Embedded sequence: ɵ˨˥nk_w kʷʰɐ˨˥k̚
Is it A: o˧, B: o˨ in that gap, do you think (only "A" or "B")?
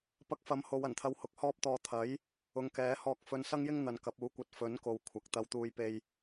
B